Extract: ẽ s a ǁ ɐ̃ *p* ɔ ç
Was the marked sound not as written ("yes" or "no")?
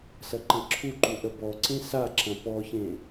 no